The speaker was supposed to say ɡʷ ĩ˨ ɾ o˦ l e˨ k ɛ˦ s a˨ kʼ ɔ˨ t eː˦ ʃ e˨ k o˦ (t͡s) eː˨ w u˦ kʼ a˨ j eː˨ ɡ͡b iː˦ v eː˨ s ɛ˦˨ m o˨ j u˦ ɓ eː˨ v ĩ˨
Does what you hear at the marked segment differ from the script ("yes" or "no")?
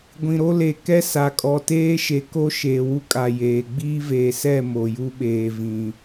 yes